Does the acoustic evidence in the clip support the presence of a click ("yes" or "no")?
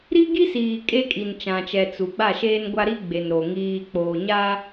no